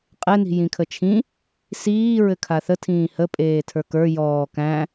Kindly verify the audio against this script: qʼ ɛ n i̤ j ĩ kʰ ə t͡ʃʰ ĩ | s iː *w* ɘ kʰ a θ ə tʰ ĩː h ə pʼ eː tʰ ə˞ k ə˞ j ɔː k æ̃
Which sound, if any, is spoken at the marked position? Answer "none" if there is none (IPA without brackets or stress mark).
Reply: ɹ